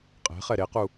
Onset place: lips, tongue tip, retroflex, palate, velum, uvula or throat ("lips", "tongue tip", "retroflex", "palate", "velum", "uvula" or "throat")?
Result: uvula